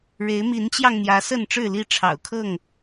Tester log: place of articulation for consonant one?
retroflex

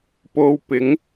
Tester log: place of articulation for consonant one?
labial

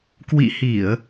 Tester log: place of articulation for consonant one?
velar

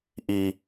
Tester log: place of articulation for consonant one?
glottal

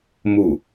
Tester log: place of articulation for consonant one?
labial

